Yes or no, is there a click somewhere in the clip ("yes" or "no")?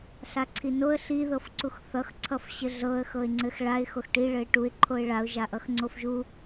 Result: yes